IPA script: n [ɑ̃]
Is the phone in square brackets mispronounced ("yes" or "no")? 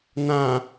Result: yes